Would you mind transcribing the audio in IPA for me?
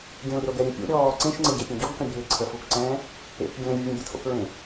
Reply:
ɡʲ ə̃ː l ɾʲ ə ɾ o ɡ ɛ ɾʲ ə̃ pʲ o̰ ɾʲ ɔː ǀ ẽ ʃ ŋ͡ǀ e ɟ e pʲ ɔ̃ ɟ ɔ ɡ k ə̃ bʲ eː ǀʰ ə f u k ǀ ɛ̃ː | ḛ k ɡʲ ə̃ː vʲ u vʲ ẽ bʲ ə̃ tʰ o̰ k ɹ ẽ

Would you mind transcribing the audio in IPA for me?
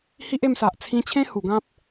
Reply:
h i˦ ʔ e˥˧ m s a˨ ʔ t͡sʰ ĩ˧ t͡ɕʰ ẽ˦ h u˨˩ ɡ ã˦ p̚

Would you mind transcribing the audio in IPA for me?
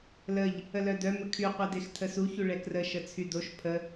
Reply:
l ə ʎ | ə l œ d œ m ə kʰ y qʷ ɛ d e x tʰ ə s u ç u ɭ ɛ k r ə ʃ ə t͡sʰ y d o ʃ pʰ ə

